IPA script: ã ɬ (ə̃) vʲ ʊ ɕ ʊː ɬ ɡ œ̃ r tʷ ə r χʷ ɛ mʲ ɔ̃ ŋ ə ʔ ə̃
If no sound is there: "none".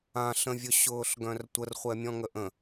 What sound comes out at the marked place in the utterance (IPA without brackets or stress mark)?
ə̃